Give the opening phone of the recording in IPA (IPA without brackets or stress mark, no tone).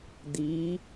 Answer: d̪